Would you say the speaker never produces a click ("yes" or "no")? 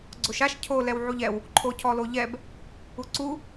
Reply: no